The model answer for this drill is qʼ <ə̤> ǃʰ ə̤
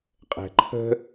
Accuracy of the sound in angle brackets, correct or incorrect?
incorrect